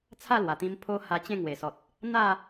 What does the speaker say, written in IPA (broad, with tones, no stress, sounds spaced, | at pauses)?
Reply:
t͡sʰ a˥˧ l w a˨˩ t̪ ĩ˧ m pʰ o˦ h a˧ t͡ɕ ẽ˥˧ ŋ w e˨˩ s ɔ˨ t̚ | n̪ a˥˧